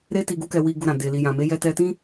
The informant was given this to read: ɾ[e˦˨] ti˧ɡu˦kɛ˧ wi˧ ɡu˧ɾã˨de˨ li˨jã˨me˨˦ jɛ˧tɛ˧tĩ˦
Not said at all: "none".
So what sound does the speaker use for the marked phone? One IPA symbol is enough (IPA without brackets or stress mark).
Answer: e˦